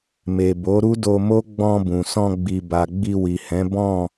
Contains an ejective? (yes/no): no